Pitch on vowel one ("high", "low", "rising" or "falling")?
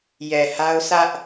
low